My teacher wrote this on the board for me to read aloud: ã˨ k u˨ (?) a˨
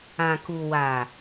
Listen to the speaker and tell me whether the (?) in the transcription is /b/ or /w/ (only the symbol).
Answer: w